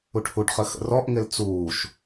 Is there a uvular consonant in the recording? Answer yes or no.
yes